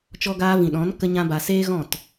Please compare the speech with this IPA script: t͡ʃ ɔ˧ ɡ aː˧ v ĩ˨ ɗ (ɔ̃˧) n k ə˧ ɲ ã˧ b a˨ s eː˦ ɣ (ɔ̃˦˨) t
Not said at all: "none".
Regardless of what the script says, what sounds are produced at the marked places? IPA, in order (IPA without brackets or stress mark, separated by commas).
ɔ̃˨˦, ɔ̃˦˨